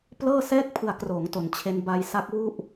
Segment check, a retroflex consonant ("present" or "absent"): absent